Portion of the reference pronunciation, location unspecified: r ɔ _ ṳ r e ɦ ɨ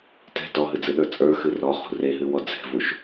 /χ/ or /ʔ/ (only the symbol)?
χ